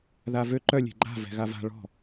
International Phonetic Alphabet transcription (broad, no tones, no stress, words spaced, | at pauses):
ðavø ǃœ lʲe̤ɡ͡ǃa̤ vɛ̤ɣava̤ ɭɔ̤